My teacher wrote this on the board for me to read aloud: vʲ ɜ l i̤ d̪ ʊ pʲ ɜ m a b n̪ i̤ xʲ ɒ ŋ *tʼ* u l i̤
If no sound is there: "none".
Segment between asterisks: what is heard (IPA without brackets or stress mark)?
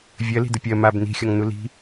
n̪